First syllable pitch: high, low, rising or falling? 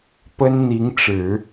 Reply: high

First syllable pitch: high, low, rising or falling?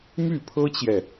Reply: falling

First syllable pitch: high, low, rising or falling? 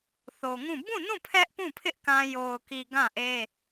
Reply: low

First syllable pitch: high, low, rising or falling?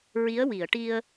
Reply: rising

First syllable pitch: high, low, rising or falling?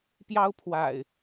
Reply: high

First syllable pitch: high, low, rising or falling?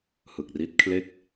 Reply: low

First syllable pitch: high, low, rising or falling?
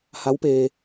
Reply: rising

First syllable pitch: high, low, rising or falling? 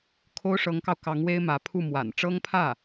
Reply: high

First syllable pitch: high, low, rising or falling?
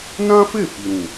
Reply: high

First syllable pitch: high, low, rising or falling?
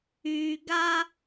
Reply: low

